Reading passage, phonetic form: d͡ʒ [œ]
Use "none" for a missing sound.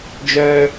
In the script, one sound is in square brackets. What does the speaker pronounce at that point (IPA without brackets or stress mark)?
œ